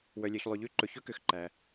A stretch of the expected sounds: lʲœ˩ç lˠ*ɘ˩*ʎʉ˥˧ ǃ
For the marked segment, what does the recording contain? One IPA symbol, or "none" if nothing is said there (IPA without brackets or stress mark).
ʉ˩